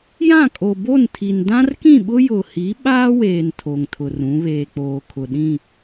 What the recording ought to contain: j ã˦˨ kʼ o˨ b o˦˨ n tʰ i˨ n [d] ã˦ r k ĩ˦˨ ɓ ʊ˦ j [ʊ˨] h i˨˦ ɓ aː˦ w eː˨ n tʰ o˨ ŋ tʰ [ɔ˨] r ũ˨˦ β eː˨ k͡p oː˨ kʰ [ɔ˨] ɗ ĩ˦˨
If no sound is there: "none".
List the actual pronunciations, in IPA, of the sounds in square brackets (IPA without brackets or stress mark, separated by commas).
d, ʊ˨, ʊ˨, ʊ˨